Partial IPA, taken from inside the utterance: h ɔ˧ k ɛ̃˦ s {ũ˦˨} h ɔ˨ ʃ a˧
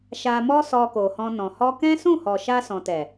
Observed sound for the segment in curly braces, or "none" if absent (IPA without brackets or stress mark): ũ˦˨